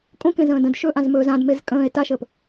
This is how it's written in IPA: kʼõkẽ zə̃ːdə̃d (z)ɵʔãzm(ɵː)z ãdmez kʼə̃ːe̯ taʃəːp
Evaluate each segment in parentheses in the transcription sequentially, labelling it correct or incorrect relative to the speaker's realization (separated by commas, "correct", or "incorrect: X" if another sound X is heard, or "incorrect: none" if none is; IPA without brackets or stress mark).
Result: incorrect: ʃ, correct